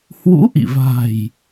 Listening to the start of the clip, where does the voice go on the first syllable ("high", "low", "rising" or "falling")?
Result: rising